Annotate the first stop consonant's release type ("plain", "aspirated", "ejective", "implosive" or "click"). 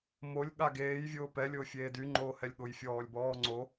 implosive